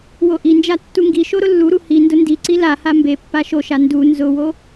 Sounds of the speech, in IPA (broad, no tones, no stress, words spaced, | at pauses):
woʔind͡ʒa tːuŋɡiʃo ɾʊlːuɾu hi ndʊndiǀi laha mbe pːaʃoʃa ndu nzʊwo